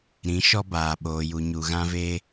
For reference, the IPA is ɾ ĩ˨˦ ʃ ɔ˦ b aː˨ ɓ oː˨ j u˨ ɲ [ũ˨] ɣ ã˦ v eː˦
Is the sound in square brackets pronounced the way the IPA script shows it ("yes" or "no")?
no